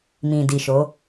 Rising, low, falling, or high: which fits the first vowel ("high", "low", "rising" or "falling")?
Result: low